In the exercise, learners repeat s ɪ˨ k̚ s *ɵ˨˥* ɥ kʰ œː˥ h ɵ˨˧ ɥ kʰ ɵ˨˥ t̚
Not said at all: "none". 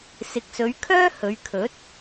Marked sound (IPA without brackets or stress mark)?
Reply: ɵ˨˧